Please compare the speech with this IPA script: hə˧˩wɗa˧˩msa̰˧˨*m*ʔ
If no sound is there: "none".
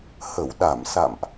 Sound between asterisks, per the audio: m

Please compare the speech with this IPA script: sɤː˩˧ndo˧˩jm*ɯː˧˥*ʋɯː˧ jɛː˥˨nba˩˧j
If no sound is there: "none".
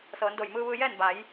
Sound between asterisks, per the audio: ɯː˧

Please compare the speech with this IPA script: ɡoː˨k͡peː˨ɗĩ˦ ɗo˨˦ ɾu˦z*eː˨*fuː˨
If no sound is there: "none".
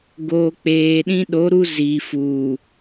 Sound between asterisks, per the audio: iː˨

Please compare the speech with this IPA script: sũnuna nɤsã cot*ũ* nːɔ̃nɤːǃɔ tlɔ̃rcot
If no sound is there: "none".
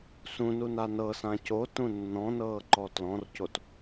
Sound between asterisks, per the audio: ũ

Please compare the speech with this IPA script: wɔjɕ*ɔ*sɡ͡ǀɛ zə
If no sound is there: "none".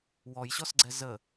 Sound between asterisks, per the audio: ɔ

